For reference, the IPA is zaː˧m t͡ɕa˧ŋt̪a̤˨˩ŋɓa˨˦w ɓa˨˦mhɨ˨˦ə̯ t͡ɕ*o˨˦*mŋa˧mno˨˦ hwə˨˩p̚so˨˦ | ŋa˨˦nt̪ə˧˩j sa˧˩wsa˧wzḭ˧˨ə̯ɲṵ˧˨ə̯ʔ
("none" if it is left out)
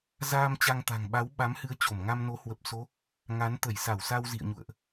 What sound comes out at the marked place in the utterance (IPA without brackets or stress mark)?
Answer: o˧˩